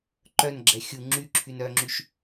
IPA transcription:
ǃœnɡ͡ǁɛ xʲu ŋ͡ǁyǁʰyn œŋ͡ǁyʃ

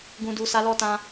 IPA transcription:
ɡũ˨du˨ sa˨˦lɔ˦˨ tã˧

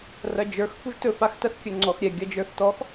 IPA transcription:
rɐd͡ʒə˞x fuʒtɵ faxtɐθkʲɵŋ͡ǀɔx ɾʲɛ ɡʲɐd͡ʒə˞θtɔx

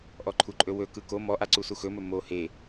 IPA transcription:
ʔɔǃʰuǃʼɵwɵ kɯko mɔʔaǀu suxɵmɵ mo he

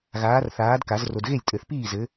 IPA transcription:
ɣaː˨˥rθaː˨˥dka˨˩˦z ro˨dɣe˥˩lʲtʼɘ˨˩˦θpiː˥˩ zɘ˨˥

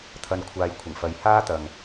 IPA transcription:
t̪ʰɐ˧n kʷʰaː˨j kʷʰɪ˨˩ŋfɐ˨˧j haː˥t̪ɐ˨ŋ

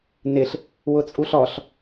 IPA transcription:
nɪɬ | wʊt͡sʼuɬɔɬ

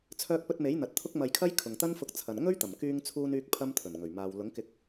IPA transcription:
t͡sʰœː˧k̚pɵ˧t̚me˨˥jn̪ɐ˨t̚ t̪ʰʊ˥k̚mɐ˧jkʰɐ˥j kʰʊ˨ŋt̪ɐ˥nfʊ˧k̚ t͡sʰɐ˨nŋɵ˥ɥt̪ɐ˨˩m kyː˧ŋt͡sʰuː˧nyː˧k̚ pʰɐ˥mt̪ʰɵ˨˩nŋɵ˨˩ɥ maː˨w lʊ˨˥ŋkɪ˧k̚

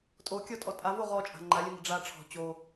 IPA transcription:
tʼo kʲɔtʼɔtʼavo ʁɔt͡ʃʼa̤ ŋ͡ǃalʲənə̤ ɖ͡ʐa ʈ͡ʂʰɔ̤ t͡ɕo

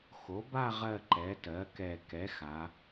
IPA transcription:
xo˩˥ba˥˧ ʁɜ˥˧ǃɛ˩˥tɜ˩˥kɛ˧˩ kɛ˩˥xa˩˧

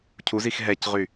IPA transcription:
cʰuzix ɦɛcʁy

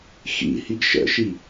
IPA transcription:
xḭhiɡ ʃə̰ʃi

